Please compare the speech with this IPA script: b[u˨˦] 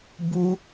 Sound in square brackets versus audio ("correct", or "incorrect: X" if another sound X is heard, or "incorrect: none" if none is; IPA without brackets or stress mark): incorrect: u˦